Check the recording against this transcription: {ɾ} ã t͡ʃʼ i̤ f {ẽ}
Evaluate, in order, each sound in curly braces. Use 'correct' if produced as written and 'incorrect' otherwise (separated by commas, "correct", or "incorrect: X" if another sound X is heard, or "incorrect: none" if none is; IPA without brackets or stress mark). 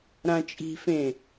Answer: correct, correct